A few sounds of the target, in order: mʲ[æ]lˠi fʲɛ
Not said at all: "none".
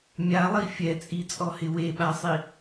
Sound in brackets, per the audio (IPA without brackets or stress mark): a